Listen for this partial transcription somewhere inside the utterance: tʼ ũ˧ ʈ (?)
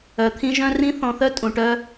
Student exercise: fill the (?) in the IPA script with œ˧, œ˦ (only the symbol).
œ˦